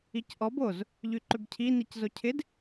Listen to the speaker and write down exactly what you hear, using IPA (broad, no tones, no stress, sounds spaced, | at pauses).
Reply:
i c ʔ ɔ b o z | ʎ y ǃ ʏ b cʰ i n i c z o cʰ ɪ d